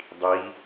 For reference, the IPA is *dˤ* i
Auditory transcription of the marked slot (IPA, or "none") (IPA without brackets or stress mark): dˤ